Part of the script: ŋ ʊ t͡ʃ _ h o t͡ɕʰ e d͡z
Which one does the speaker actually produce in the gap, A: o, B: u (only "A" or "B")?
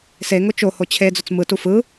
A